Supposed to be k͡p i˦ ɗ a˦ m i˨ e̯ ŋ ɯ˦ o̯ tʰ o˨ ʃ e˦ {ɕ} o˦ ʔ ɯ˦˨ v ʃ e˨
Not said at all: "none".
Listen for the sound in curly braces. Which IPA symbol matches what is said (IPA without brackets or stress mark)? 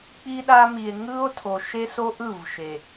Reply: s